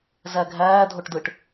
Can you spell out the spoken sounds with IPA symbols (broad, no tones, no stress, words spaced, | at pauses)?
zæɡʱæː dʱoʈdɯʈ